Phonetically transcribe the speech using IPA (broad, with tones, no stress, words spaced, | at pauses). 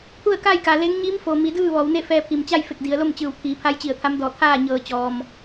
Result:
pʰu˥˨ə̯ka˥˨jka˩ le˧˥ŋ ɲi˧˥mfo˩mi˩˧ dɯː˥˨ʋɔː˩˧wne˥˨fɛː˧ pʰi˩mt͡ɕa˥˨jfe˧˩k̚ di˩˧ə̯lo˥˨mt͡ɕɯː˧˩wt̪ʰiː˩˧ pʰa˧˥jt͡ɕi˧˩ə̯t̪ʰa˧˥mdɔː˧˩ t̪ʰaː˥˨ɲɤː˧˩t͡ɕɔː˩m